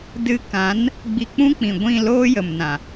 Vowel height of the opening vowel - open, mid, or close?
close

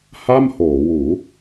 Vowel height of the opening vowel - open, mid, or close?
open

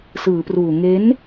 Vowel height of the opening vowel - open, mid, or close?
close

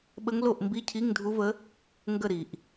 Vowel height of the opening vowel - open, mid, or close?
mid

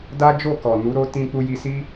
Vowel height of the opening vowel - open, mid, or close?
open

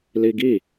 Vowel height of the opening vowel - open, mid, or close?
close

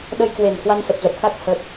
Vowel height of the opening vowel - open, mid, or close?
mid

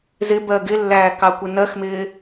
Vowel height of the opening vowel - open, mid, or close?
close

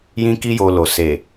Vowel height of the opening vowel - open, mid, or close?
close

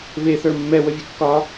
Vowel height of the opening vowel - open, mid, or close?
mid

